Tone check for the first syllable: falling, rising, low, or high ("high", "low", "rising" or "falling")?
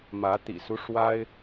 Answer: rising